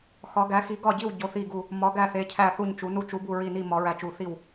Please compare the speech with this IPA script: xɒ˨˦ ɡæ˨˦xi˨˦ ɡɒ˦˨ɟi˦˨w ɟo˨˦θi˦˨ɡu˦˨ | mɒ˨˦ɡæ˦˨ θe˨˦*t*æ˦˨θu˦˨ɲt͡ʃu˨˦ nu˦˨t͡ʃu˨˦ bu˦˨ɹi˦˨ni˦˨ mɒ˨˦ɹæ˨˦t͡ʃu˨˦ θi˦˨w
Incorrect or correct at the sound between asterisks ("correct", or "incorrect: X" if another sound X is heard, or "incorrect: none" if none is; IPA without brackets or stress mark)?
incorrect: cʰ